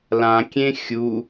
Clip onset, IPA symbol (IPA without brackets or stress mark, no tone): l